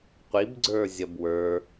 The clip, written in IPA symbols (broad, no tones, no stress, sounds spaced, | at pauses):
qʷ i b ɡ͡ǀ ə˞ zʲ ɐ b w ə˞